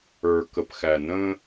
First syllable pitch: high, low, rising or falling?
low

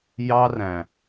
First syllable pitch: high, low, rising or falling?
high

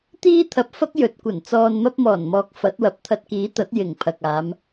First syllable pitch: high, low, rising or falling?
high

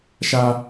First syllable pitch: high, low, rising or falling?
high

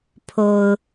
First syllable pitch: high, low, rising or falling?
low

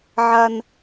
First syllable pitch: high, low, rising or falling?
high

